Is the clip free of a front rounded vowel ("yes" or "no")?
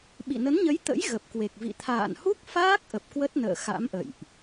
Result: yes